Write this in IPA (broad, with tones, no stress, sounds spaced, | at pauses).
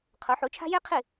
qʰ o˩˥ ħ u˩˥ t͡ʃʰ a̤˥ j e˥ qʰ i˥˩